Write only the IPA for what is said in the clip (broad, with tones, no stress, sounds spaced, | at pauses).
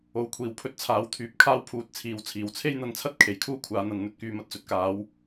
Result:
o˨ w kʷʰ iː˨˩ w pʰ ɵ˨ t̚ t͡sʰ aː˨˥ w t̪ʰ yː˨ p̚ kʰ aː˥ w pʰ uː˨˥ t̚ t͡sʰ iː˨˥ w t͡sʰ iː˨˩ w t͡sʰ e˥ j n̪ ɐ˧ n t͡sʰ ɐ˥ t̚ kʰ e˨˩ j kʰ uː˥ kʷʰ aː˧ n̪ ɐ˧ n n̪ ɵ˧ t̚ k yː˧ m ɐ˥ t̚ t͡s ɵ˨˥ t̚ k aː˨˥ w